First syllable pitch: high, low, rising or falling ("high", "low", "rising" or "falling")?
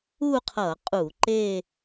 falling